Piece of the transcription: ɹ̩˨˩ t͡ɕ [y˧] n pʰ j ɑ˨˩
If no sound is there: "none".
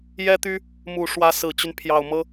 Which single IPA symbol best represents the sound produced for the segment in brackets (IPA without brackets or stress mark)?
y˦